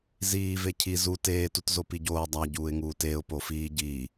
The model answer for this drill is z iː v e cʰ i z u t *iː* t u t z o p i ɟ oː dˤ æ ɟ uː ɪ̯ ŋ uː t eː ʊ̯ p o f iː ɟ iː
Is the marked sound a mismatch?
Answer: yes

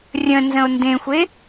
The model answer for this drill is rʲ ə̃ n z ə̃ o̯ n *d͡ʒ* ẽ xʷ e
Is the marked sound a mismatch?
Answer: yes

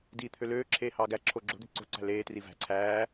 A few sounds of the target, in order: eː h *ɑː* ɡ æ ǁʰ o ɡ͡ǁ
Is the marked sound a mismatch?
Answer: no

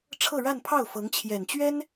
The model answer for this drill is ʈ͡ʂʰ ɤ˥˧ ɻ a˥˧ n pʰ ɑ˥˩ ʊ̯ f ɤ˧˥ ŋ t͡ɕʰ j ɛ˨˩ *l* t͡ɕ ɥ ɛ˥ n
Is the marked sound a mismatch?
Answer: yes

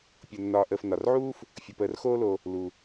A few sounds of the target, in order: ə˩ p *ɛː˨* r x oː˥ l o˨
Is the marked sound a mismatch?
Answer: yes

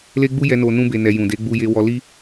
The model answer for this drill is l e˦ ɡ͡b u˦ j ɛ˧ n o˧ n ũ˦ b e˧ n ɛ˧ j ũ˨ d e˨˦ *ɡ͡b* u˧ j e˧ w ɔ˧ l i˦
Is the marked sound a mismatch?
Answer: no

